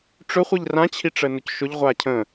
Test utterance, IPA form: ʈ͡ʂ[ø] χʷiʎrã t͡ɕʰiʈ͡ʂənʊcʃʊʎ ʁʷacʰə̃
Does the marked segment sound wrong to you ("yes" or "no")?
yes